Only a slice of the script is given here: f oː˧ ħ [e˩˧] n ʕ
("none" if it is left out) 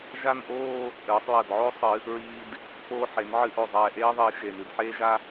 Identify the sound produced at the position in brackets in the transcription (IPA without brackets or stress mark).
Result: e˩˧